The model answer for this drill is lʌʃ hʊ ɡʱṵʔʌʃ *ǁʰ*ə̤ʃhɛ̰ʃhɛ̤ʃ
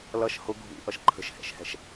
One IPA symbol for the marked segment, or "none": ǃʰ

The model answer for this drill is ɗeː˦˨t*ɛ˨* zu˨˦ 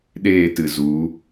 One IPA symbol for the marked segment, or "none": ɨ˨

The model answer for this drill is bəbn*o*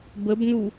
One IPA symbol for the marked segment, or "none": u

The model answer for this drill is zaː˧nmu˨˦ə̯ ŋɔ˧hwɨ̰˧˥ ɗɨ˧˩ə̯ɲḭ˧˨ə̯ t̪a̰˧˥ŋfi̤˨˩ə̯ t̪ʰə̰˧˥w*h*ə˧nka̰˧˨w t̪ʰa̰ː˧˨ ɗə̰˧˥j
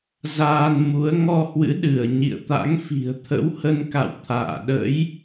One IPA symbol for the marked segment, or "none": h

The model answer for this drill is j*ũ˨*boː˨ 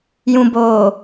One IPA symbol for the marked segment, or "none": ũ˨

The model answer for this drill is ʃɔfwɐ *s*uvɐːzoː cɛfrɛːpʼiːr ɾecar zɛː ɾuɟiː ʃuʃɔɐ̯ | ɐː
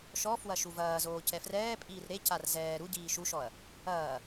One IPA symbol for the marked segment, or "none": ʃ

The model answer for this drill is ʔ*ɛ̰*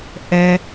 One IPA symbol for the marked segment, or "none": ɛ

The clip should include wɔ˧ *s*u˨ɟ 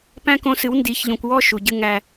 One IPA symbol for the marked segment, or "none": ʃ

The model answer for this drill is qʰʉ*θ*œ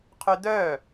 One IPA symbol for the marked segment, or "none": d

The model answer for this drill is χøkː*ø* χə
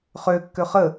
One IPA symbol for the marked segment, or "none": ø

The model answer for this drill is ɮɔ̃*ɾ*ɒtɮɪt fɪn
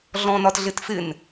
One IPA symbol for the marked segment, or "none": n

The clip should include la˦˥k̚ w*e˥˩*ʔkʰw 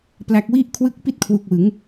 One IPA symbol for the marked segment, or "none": i˥˩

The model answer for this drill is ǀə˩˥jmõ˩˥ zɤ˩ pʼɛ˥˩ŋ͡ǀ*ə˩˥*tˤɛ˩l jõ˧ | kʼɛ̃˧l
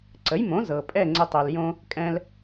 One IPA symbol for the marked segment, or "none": ə˧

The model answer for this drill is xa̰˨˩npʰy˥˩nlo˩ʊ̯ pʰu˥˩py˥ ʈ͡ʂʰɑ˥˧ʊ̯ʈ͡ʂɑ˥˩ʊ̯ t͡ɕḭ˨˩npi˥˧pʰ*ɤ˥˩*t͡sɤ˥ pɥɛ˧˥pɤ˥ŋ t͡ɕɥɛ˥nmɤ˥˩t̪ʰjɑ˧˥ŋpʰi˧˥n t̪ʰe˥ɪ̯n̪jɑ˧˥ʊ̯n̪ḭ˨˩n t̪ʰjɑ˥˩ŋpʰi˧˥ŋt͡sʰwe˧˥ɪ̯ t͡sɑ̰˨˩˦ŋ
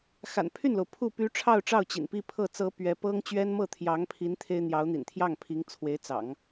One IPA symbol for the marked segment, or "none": ɤ˥˩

